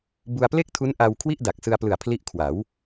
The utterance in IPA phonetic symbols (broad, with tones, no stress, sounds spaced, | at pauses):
b u˧ a̯ p l e˥˩ k̚ tʰ u˦˥ n ʔ a˧ w kʰ w i˥˩ ʔ d a˨˩ k̚ s ɯ˧ a̯ p l ɯ˨˩ a̯ pʰ l i˦˥ ʔ kʰ w a˩˦ w